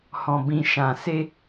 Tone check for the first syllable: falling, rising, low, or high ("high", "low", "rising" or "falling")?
low